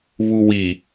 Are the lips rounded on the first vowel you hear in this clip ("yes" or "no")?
yes